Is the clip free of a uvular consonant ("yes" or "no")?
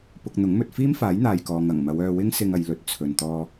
yes